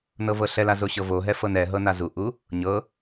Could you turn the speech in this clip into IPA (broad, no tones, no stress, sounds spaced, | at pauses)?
n ɤ v ɤ ɬ ɛ l a z o ɕ ɤ v o ɦ ɛ f ɤ n ɛ ɦ ɤ n a z u ʔ u | ɲ ɤ